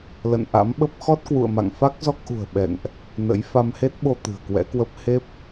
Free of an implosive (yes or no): no